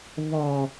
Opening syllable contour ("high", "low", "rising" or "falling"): low